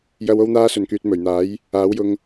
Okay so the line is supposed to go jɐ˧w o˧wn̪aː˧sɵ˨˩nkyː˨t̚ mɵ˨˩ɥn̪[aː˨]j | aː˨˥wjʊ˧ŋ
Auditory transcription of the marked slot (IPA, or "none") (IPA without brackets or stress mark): aː˨˥